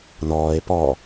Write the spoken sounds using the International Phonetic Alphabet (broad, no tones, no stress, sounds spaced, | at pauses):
n ɔː e̯ p ɔ